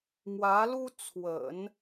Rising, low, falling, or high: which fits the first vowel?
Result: rising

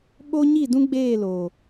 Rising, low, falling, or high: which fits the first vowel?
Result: high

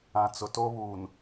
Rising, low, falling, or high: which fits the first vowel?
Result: low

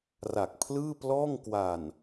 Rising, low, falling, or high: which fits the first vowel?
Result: low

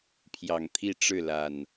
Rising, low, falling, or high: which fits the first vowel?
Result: low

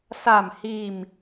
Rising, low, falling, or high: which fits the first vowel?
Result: low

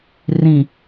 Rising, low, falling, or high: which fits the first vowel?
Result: low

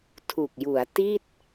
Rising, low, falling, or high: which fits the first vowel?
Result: low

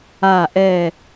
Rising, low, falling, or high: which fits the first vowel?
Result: low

